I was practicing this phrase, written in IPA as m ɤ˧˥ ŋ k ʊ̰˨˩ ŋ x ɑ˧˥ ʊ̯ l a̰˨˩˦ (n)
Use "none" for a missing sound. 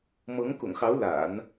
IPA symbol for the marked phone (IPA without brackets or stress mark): n